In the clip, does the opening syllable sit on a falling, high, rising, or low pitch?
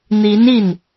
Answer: rising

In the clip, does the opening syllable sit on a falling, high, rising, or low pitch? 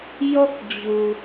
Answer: high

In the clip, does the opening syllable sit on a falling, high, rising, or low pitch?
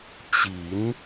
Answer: rising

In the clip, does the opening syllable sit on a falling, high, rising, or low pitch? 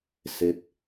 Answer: low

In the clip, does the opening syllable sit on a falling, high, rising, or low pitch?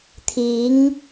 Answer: rising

